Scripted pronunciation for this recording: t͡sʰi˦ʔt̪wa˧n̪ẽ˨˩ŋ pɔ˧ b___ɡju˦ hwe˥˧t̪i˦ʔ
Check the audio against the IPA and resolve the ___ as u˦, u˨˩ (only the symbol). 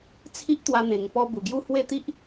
u˨˩